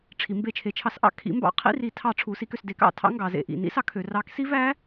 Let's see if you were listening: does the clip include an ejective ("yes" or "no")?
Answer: no